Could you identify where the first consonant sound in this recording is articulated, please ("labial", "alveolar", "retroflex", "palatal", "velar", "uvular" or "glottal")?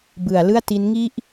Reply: labial